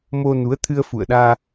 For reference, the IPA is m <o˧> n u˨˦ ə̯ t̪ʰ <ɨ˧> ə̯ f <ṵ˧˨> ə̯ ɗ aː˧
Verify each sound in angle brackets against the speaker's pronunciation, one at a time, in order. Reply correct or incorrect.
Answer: correct, correct, correct

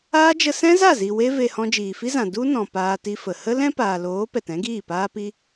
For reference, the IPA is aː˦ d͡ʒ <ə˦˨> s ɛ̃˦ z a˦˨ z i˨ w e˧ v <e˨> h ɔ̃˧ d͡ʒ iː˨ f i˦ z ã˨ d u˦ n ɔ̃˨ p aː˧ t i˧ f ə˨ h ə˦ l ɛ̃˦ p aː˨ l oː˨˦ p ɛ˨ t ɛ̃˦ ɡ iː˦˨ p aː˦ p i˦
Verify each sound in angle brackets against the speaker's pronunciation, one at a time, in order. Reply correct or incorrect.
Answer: incorrect: ə˧, correct

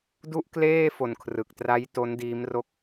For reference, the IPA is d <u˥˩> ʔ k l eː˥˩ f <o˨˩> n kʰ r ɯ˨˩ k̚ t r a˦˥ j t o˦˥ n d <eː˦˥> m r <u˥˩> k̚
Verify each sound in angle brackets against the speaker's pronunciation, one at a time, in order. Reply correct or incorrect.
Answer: correct, correct, incorrect: iː˦˥, incorrect: o˥˩

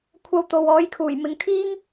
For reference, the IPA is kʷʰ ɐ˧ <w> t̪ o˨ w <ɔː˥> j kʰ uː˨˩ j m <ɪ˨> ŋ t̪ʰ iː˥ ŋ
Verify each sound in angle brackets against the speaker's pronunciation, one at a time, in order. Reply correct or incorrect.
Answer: correct, incorrect: ɔː˨˥, incorrect: ɪ˨˧

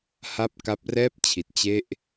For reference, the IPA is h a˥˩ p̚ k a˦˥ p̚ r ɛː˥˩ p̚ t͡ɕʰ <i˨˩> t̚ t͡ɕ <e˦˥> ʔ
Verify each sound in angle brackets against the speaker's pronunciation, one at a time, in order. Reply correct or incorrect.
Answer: correct, incorrect: e˥˩

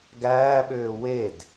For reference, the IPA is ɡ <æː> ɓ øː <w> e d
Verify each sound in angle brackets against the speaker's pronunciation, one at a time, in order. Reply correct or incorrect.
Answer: correct, correct

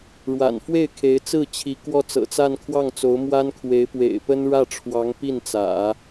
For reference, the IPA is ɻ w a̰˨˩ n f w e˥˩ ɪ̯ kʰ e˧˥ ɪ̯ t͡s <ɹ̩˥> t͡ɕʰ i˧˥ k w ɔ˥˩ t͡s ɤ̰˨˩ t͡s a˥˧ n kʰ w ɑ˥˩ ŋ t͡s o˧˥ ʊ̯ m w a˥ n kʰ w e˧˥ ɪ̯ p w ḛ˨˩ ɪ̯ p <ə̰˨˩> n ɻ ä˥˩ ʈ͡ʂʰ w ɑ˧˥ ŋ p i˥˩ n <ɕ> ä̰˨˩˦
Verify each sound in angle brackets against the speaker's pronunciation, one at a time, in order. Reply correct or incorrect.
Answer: incorrect: ɹ̩˥˩, incorrect: ə˥, incorrect: t͡s

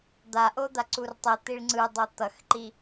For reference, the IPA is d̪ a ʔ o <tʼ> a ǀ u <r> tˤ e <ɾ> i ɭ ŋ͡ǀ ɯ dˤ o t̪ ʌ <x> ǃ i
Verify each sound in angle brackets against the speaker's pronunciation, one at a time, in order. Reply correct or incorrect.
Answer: incorrect: d̪, correct, incorrect: t̪, correct

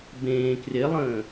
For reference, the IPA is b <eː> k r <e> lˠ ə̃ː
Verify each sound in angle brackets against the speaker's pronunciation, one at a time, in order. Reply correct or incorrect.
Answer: incorrect: ẽː, correct

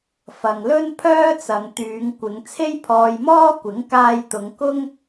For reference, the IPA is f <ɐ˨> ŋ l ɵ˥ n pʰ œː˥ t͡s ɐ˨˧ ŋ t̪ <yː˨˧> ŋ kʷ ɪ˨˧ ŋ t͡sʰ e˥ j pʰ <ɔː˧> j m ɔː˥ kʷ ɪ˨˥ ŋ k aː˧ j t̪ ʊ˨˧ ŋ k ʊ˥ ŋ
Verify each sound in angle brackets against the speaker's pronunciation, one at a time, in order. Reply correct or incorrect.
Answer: correct, correct, correct

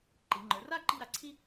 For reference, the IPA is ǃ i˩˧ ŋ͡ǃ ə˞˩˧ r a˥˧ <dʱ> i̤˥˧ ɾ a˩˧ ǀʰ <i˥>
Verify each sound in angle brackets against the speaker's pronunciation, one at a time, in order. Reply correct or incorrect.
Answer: incorrect: ǃ, correct

